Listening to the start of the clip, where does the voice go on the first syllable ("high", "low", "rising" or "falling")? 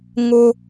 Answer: high